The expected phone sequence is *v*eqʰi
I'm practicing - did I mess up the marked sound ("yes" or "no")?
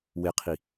yes